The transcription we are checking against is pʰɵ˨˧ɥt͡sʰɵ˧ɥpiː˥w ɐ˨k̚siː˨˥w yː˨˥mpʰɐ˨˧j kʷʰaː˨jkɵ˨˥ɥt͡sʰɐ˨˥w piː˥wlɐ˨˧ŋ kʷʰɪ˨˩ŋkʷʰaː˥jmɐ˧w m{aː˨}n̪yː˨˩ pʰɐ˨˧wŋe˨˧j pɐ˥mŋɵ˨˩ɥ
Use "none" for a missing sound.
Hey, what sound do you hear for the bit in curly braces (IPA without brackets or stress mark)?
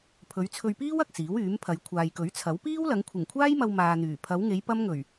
aː˧